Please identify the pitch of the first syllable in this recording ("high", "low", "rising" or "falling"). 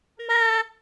high